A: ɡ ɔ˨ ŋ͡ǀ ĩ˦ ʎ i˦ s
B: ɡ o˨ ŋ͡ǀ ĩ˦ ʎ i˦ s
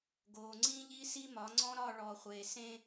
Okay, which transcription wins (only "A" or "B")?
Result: B